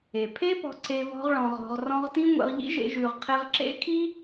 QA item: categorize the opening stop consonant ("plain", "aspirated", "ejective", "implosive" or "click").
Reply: aspirated